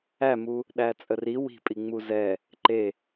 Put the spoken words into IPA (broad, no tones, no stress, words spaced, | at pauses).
æmu | ɗæt͡sʼəri wi̤pʼi ŋ͡muzɛ | ǃe